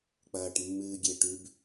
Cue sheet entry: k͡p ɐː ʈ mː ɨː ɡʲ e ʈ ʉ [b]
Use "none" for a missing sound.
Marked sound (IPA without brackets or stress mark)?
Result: b